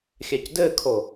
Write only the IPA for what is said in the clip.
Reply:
xʲ æ c d ɘ kʰ o

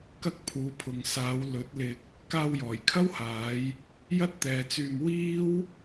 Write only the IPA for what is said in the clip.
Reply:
k ɐ˥ k̚ pʰ uː˨˧ pʰ ʊ˨ ŋ s aː˨˧ w l ɵ˨˥ t̚ l ɪ˧ k̚ | k aː˧ w j ɔː˨˩ j kʰ ɐ˥ w h aː˨˧ j | j ɐ˥ t̚ t̪ ɛː˨ t͡s yː˧ m w iː˥ w

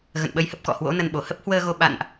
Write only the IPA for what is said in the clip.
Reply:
ɣ ə̰˧˨ n ɓ ə˧ j h ə˦˥ p̚ k ɔ̰˧˨ h w o̰˧˥ n ə˧ n ɓ o˧˩ h ə˦˥ p̚ h w əː˧ ɣ o˧ ɓ a̰˧˨ n ʔ

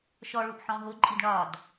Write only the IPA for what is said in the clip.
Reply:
ʃ ɔ ɭ u ʔ ħ ɔ̃ ɦ ʊ ǃʼ i d ɳ ɒ d

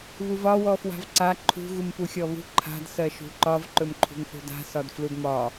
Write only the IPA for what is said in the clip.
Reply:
β u v ɒ w ɔ f w a̤ v ǀ a ǃʰ ṳ ɣ u m p u xʲ ɔ β ṳ ǃʰ a̤ d s ɜ ʃ ṳ ǃ ɒ v ǃ ɵ m ǃʰ ṳ ŋ θ ṳ d a̤ s ɒ d f l u d m ɒ

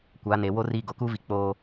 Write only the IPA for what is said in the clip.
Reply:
kʷ a˨˦ n e˨ w o˦ r i˦˨ ɡ o˨ k uː˦ v i˨ k͡p oː˦

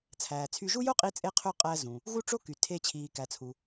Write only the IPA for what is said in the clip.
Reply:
t͡sʰ æː˩ t͡sʰ y˧ ʒ u˥ j o˥ qʼ i˧ t͡sʼ e˧ qʰ ø˧ qʼ æ˧ z ũ˩ | ɣ u˧ ʈ͡ʂ o˧ k y˩ tʰ e˧ t͡ɕʰ iː˩ k æ˩ t͡sʰ u˩

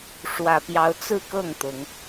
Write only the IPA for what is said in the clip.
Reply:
ʂ w ä˨˩ p j ɑ˨˦ ʊ̯ t͡s ɹ̩˥˨ k ɤ˥˨ ŋ t̪ ʊ˨˦ ŋ

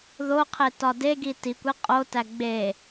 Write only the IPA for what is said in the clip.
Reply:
ð o qʰ e t ɒ d e ɡ i t i kʷ i qʼ o t æ ɡ͡b e

